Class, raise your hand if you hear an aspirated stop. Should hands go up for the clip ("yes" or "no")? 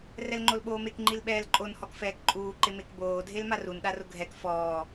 no